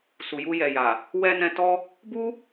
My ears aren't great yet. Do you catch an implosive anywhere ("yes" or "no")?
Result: no